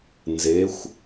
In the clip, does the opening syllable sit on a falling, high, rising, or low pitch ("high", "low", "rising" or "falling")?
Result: rising